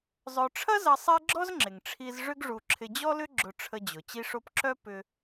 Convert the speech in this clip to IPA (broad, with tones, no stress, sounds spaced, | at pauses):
zˤ œ˧ ʈ͡ʂʰ ɐ˥ z ɐ˧ sˤ ɛ˥ ɡ͡ǁ ɔ˥ z ŋ͡ǁ ɪ˩ ŋ ʈ͡ʂʰ i˧ z ʐ ʏ˥ ɡ ʐ u˧ ǁʰ ɪ˧ d͡ʑ ɔ˥ l ʏ˥ ɡ͡ǁ ʊ˧ ʈ͡ʂʰ ə˧ d͡ʑ ʊ˩ t͡ɕ i˥ ʂ o˥ p ǁ œ˥ p ʏ˧